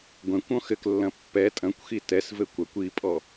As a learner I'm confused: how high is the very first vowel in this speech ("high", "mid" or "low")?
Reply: mid